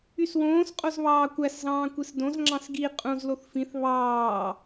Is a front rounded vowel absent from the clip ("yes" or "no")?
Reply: no